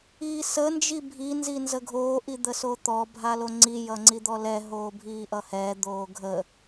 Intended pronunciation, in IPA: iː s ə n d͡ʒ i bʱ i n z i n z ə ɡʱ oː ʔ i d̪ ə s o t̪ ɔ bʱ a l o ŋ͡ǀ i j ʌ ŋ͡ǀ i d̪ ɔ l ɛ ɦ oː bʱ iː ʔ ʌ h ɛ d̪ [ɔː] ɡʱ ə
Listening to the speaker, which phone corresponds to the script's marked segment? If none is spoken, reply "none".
oː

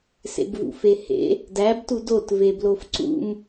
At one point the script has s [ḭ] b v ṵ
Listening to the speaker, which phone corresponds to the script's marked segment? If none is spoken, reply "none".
ḛ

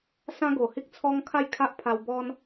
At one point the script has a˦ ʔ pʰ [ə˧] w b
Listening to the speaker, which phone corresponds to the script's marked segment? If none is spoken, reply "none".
a˧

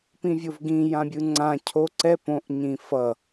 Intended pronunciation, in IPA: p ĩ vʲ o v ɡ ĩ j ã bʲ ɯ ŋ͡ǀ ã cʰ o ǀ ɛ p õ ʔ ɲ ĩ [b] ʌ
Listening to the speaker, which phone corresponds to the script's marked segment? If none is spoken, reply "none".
f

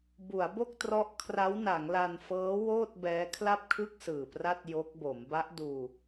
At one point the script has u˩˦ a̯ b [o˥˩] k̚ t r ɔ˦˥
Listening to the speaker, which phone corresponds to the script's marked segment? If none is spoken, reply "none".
o˥˩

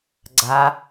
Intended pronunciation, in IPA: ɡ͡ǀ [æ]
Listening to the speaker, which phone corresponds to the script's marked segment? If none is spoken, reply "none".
a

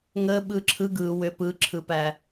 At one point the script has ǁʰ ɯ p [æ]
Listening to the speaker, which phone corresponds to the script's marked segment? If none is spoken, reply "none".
æ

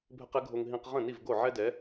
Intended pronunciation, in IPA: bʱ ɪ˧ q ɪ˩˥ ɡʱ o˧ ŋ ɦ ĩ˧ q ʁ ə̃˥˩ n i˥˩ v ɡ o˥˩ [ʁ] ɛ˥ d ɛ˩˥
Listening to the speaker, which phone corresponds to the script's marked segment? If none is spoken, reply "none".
ʕ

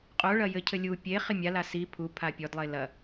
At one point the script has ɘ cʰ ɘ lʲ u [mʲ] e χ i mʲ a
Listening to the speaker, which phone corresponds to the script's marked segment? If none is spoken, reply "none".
pʲ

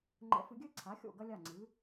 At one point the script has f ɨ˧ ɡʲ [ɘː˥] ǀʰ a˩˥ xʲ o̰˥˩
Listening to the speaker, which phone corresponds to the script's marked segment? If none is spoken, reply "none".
ɘː˥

